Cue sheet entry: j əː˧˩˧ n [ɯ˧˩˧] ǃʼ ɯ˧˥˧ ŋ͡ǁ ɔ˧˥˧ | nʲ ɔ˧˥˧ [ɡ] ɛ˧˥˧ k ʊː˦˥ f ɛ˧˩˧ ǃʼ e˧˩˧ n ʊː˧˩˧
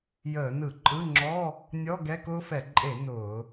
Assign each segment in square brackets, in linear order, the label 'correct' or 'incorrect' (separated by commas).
correct, correct